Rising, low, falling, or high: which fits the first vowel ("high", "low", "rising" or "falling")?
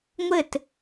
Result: falling